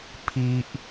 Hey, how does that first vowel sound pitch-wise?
high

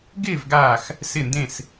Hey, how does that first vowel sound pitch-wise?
falling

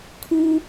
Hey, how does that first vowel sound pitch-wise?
low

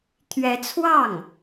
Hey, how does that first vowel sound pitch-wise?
rising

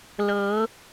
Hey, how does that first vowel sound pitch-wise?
rising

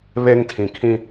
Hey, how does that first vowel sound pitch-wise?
high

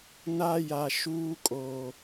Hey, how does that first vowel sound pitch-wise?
high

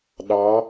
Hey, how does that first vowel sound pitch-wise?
rising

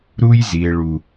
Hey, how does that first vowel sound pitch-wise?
high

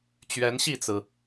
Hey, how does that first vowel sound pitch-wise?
rising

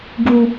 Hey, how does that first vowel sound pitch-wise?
high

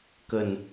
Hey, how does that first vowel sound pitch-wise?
low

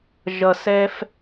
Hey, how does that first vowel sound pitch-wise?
low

